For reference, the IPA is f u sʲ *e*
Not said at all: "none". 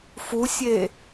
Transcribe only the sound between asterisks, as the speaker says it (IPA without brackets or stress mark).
e